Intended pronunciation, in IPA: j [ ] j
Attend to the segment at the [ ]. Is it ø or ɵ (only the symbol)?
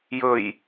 ɵ